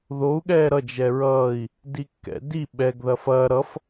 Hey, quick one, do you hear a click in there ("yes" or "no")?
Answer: no